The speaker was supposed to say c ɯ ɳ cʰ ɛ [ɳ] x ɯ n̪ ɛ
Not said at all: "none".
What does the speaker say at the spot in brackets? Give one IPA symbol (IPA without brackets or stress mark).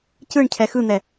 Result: none